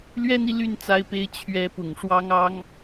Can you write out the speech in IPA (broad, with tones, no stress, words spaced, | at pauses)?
lɥɛ˥ni˨ly˥˩n t͡sa˥ɪ̯pe˥ɪ̯ t͡ɕʰɥɛ˧˥pʊ˨˩ŋ ʂwɑ˥ŋɑ˥ŋ